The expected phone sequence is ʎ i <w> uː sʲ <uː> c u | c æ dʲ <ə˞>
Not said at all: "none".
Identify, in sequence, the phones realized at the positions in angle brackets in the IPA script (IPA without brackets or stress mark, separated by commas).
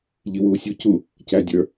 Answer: w, u, ə˞